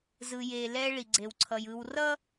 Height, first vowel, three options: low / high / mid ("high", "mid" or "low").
high